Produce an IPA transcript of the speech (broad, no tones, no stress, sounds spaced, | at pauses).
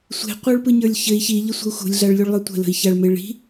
sʷ e̤ qʷ ə˞ ɭ p ɯ ɲ ə˞ lʲ ç ɘ i̯ ç i ʎ ɘ sʷ ə̤ u̯ x ṳ lʲ ɮ a ɭ lʲ u ɭ lˠ ə˞ tʷ ə̤ l ə̤ i̯ ç a ɭ m e ɭ i̤